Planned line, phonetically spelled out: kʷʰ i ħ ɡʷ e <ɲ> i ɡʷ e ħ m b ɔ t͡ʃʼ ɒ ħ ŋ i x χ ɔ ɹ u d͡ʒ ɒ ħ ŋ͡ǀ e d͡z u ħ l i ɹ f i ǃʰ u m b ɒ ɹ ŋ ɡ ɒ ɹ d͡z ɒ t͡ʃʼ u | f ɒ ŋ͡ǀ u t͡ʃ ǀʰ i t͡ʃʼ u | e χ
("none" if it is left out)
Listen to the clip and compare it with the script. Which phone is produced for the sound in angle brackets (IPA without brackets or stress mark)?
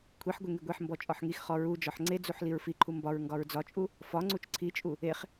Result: ŋ